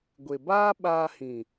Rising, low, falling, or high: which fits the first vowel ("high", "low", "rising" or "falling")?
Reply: low